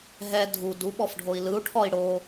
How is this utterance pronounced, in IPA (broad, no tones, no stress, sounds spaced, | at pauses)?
ɦ ɛ dʱ u d u ɓ ɔ f ɖʱ o i̯ l ɯ u̯ ʈʰ ɔ i̯ ɽ o